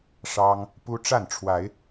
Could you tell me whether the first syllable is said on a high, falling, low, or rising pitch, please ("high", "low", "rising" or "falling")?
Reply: high